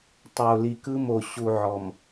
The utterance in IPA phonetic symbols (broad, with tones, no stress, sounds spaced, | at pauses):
tˤ o˨ l i˨ k ɯ˦ m o˨ ɕ u˨ ʕ ɔ˨ m